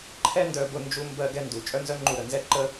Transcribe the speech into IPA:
ǃʰɛ˥ ndœ˧bʊ˧ nd͡ʒu˧ mbɜ˧ɡɛ˧ndu˩ t͡ʃʼœ˥nzœ˥ŋ͡ǃu˧ ɾə˩nzɛ˥ǃə˥

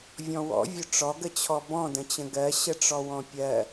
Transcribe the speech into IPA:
vʲɔ̃wɔ̰vʲʊ ʈ͡ʂɔɡət͡ɕʰɔ bɔ̃də̃t͡ɕə̃ ɡɜ ɕəʈ͡ʂɔwɔ̃pʲɜ

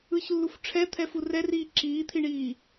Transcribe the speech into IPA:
ɯçlːuf ʈ͡ʂʰɛt̪ʰɛfu rɛriː ǁiːt̪ʰiɳiː

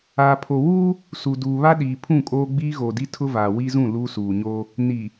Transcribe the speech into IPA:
a˨pʰo˨wu˦ | su˨duː˨βa˦ ɗiː˨pʰũ˦˨kʼoː˦ ɡ͡bi˦ɣo˨di˦ tʰʊ˦va˨ wi˦zũ˦˨ luː˦suː˨ɲo˦ | ni˨

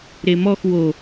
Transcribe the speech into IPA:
ɾemɔx wo

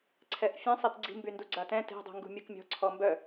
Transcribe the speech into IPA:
ǀʰɛʔfʲẽsˤit ɡ͡ǀi̤mbyndu ɡ͡ǀatɛ̃ te̤ dˤṳŋɡṳmʲukmʲɔ̤ ǀʰɔmbœ

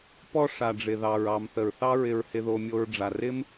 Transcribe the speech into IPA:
pɔ˦ ʂa˨ɖ͡ʐɪ˨ðɑ˨ɹ ɑ˨mθə˨ɹθɑ˦ ɹɪ˧ɹhɪ˧ðo˧mʲo˧ɹ ɖ͡ʐa˨rɪ˦m

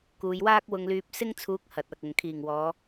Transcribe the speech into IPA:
kuː˨˧jwaː˥k̚ wʊ˧ŋlyː˧p̚ sɪ˥ŋt͡sʰuː˨˥k̚ hɐ˨˥t̚ɐ˨k̚ʊ˨ŋ kʰiː˨˩ŋwɔː˨˧

